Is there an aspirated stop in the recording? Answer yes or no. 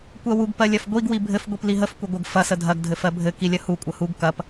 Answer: no